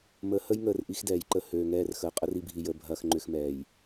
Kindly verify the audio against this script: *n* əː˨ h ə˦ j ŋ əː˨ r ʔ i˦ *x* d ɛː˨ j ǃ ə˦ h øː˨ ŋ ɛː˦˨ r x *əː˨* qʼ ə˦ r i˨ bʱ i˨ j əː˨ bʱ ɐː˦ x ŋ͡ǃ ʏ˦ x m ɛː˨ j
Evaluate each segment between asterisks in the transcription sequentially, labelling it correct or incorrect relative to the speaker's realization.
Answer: incorrect: m, correct, correct

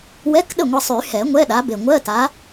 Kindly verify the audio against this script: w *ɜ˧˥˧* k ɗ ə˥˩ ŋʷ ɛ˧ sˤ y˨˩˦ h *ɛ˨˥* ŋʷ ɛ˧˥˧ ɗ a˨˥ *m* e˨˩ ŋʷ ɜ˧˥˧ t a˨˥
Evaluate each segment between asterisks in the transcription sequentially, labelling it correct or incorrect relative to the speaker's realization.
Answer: incorrect: ɛ˧˥˧, incorrect: ɛ˨˩˦, incorrect: b

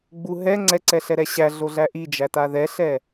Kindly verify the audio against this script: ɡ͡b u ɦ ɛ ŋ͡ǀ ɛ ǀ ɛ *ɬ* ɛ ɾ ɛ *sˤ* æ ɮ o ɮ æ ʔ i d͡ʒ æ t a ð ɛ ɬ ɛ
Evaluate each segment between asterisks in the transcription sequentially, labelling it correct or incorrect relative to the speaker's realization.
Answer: correct, incorrect: ɕ

